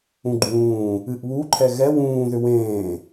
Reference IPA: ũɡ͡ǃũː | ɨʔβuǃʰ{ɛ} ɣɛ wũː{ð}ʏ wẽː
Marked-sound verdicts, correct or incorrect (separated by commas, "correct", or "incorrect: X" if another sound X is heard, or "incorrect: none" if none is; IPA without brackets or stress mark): correct, correct